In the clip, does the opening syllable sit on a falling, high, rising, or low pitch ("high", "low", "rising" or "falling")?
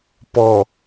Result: low